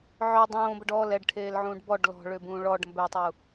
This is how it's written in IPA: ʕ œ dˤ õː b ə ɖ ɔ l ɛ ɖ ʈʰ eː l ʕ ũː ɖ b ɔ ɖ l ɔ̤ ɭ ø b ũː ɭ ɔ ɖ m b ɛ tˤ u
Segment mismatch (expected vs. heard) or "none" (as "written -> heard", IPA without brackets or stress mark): none